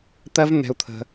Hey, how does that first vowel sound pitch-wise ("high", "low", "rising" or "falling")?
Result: high